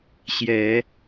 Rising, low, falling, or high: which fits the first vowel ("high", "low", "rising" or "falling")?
rising